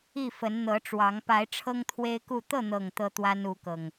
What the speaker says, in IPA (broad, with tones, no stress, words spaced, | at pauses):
i˥˨fə˨˦n n̪ɤ˨˦ʈ͡ʂwɑ˨˦ŋ pa˨˦ɪ̯ ʈ͡ʂʰɤ˦ŋt̪ʰwe˦ɪ̯ku˥˨ t̪ɤ˥˨n̪ɤ˨˩ŋ t̪ɤ˦t̪wa˦n u˨˦kɤ˨˩ŋ